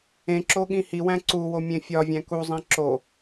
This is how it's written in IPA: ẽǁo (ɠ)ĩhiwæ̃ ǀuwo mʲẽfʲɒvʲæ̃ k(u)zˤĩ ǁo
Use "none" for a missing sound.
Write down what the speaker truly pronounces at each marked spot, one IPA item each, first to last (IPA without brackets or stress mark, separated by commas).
ɠ, u